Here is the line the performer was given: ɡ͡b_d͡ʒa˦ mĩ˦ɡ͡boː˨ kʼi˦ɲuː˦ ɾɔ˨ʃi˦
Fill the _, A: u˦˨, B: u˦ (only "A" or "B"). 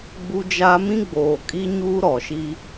B